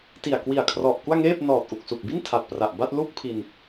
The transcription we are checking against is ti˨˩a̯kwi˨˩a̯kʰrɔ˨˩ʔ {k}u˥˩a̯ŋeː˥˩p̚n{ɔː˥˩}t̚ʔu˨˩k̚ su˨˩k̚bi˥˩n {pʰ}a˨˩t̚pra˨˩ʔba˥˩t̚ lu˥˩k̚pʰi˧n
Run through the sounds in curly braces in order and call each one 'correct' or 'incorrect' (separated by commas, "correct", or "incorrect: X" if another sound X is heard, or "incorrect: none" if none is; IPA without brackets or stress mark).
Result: correct, incorrect: ɔː˨˩, incorrect: tʰ